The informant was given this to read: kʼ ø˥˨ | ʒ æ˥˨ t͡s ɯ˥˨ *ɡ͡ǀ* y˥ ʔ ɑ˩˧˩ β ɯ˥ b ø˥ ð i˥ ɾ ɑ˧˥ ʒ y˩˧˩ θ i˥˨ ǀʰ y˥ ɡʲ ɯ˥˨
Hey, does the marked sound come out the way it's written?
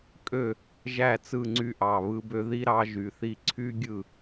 no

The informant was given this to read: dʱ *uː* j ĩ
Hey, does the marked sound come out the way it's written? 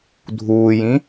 yes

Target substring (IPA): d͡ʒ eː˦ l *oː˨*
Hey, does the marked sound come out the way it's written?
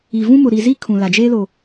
yes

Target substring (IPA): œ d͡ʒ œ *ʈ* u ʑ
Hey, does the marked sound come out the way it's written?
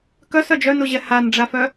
no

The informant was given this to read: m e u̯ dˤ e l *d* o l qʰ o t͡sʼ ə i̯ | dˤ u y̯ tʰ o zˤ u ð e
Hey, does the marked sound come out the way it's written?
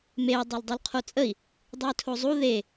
no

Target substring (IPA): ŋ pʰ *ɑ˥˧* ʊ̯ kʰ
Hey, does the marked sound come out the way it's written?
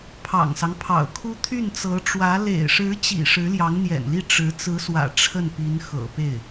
no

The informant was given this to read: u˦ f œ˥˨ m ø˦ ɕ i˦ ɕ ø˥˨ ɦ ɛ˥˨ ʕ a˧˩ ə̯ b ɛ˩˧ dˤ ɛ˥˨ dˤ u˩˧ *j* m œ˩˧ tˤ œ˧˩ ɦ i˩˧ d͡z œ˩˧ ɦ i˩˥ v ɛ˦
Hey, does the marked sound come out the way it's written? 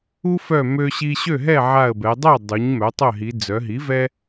no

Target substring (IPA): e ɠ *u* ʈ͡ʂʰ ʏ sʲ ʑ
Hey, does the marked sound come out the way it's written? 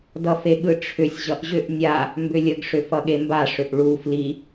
no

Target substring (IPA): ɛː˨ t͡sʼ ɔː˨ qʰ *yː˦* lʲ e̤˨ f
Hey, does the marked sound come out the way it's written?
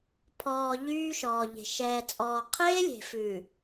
no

